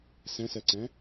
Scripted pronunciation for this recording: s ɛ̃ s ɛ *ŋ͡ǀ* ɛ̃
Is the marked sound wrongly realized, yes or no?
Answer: yes